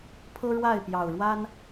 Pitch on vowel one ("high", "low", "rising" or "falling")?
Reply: high